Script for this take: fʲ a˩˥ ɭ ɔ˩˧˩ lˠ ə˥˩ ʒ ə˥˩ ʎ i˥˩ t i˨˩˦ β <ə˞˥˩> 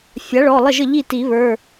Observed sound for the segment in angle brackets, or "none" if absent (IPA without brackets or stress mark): ə˞˩˧˩